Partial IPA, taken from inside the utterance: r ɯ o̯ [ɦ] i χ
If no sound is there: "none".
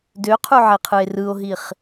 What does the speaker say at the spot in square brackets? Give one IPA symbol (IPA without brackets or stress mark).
ɦ